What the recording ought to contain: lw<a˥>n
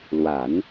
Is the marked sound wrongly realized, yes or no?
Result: yes